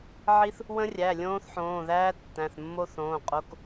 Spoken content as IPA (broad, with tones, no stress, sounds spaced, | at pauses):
ʕ i˦˥ θ | w ə̃˦˥ rʲ æ˩˧˩ lʲ õː˦˥ θ ħ õː˩˧˩ ð æː˦˥ tː æ̃˩˧˩ θ mː o˦˥ θ õː˩˧˩ qʼ o˩˧˩ k